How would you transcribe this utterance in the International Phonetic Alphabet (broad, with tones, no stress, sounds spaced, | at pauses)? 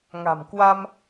ŋ a̤˨˩ m k w a˧ m